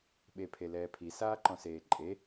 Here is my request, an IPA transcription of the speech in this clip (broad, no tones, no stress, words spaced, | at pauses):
ɓepʰelɛːpʰi saːǃɔ̃seːǃʼe